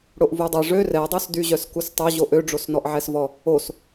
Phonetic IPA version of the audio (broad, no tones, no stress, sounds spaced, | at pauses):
ɽ o ʔ v u dˤ a ʐ ø r ɛ dˤ ø s d y ʑ œ s k u s tˤ œ ʑ o ʔ ø ɖ͡ʐ o s n ɔ ʔ ʕ ɛ s v ɔ | o s